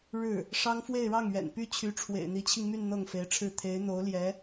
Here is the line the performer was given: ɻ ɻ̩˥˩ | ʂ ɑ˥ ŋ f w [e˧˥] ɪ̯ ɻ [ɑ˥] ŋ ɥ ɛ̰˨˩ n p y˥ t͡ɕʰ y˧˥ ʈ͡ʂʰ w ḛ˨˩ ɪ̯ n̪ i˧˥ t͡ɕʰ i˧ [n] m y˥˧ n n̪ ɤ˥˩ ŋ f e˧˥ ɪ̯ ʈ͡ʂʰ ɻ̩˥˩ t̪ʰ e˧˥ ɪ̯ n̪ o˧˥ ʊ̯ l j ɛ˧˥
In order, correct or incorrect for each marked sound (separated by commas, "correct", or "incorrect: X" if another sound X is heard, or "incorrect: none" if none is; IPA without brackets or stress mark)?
incorrect: e˥˧, incorrect: ɑ˥˩, incorrect: ŋ